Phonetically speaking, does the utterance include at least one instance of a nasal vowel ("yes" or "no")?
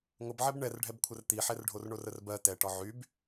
no